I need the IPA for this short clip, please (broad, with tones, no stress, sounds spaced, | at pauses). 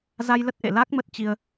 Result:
z a˧ j l ə˦˥ t̚ ʔ ḛ˧˨ l a˦˥ k̚ m ə˦˥ t̚ t͡ɕ i˧ ə̯